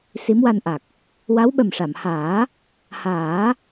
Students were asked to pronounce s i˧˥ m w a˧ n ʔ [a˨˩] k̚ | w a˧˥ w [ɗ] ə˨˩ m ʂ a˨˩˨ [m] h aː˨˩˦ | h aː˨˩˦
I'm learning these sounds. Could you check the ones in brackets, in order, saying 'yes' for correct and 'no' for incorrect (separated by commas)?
yes, no, yes